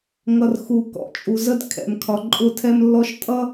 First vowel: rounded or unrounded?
unrounded